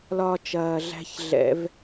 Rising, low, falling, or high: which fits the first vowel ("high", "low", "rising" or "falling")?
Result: low